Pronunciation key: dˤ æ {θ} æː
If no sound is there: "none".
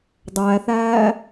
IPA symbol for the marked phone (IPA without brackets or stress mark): θ